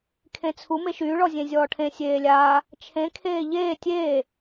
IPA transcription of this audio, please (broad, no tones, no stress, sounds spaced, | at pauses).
kʰ ẽ t͡sʰ u m e ʃ yː ɭ ɔ zʲ ẽ zʲ ɔː ʈʰ ẽ sʲ eː lʲ aː | t͡ʃʰ ẽ kʰ eː ʎ eː tʲ eː